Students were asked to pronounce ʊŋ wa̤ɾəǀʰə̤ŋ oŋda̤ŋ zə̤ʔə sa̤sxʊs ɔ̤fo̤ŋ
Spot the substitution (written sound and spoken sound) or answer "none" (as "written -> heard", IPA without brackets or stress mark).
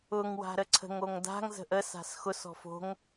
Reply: none